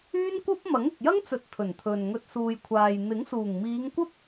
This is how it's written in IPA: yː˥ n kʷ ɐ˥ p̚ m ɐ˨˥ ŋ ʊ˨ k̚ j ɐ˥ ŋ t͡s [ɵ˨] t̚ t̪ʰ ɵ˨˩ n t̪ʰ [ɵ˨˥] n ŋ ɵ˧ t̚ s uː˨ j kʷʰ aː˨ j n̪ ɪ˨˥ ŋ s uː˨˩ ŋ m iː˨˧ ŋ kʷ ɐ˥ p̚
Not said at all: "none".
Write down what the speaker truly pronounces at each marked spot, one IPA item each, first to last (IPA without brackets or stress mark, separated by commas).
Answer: ɵ˨, ɵ˨